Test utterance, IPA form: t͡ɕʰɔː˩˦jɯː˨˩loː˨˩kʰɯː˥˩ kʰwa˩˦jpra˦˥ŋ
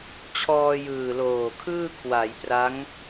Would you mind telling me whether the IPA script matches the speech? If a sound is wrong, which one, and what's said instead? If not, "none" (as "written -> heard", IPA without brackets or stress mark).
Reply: ɔː˩˦ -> ɔː˧